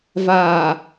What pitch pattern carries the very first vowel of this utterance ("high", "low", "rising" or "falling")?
low